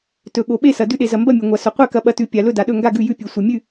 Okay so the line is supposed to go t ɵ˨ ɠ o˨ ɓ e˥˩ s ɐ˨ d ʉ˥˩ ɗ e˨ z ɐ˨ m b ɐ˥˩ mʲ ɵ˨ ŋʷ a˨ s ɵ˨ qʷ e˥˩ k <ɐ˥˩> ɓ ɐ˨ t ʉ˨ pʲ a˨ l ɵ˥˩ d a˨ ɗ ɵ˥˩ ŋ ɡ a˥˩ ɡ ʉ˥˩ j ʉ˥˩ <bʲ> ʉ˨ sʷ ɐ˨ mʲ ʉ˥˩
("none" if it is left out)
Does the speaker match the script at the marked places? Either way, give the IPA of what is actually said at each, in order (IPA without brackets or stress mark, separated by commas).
ɐ˨, pʲ